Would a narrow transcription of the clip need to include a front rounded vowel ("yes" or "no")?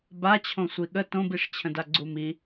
no